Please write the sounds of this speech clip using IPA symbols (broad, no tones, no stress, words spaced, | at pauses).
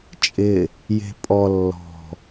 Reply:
t͡ʃʼɪ | je̤pʼɔ lːɔ̤